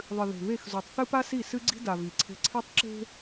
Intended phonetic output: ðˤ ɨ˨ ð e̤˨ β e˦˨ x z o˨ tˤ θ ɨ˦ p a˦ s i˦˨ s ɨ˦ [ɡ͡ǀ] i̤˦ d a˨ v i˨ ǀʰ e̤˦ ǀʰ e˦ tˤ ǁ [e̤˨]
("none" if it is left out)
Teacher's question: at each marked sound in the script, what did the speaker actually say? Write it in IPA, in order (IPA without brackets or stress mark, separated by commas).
ɡ͡ǀ, e̤˦